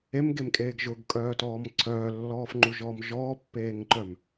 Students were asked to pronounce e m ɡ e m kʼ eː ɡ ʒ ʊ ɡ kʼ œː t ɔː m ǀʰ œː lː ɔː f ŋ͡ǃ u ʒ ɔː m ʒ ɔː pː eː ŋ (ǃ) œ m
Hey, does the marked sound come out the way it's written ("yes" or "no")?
yes